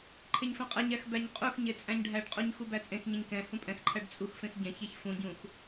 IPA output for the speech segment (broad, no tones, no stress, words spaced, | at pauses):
ǃʰeɲfɛ̃qʼɛɲæx bæɲqʼuxɲe t͡sʼæ̃ɲɖʱæɖqʼuɲ xubæt͡sʼẽxɲẽɲ kɛ̃ hũpʼɛ̃xǃʰæɖ t͡sʼuxfẽx ɟɛ̃çeç fũɟũx